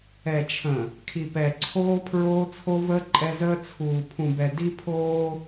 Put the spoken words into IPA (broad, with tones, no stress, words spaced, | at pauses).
ɛ˨t͡ʃʰə̃˨ | kʰi˨pɛ˨ ǀʰoː˦ pʰɹoː˦t͡sʰo˦vəː˦ ǃʼɛ˦zəː˦ t͡sʰuː˨ pʰũ˨bɛ˨ di˦pʰoː˦